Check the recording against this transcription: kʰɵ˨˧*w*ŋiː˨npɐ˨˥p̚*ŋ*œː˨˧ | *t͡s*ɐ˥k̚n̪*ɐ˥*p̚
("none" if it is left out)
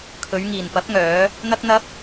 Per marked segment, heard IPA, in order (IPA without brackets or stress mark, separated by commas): ɥ, ŋ, n̪, ɐ˥